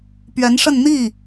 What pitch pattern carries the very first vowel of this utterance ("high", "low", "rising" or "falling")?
rising